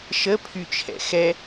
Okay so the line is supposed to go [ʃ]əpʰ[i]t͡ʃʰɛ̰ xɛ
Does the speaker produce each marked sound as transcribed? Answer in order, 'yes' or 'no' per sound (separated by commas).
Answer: yes, no